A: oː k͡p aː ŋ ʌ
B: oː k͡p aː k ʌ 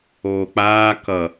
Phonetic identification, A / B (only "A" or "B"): B